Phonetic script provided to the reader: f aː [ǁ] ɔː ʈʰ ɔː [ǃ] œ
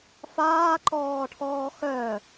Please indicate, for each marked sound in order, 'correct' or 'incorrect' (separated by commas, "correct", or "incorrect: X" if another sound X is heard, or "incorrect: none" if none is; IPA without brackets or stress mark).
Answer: incorrect: ǃ, incorrect: x